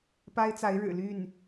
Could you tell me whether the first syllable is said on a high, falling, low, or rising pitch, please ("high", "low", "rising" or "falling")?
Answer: high